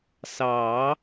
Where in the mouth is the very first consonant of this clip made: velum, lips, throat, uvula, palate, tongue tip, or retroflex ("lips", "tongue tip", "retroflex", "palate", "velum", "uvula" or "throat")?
tongue tip